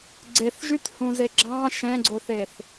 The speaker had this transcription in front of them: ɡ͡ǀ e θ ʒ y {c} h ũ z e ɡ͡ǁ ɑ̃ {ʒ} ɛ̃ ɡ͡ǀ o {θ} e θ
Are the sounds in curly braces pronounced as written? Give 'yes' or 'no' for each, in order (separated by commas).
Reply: no, no, yes